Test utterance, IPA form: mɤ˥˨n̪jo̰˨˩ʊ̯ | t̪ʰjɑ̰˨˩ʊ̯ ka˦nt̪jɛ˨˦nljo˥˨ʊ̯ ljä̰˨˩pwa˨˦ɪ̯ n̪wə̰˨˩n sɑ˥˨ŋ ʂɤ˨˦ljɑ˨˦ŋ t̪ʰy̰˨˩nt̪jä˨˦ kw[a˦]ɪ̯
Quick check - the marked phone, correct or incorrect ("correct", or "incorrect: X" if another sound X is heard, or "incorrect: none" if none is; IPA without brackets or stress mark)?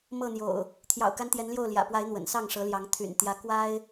correct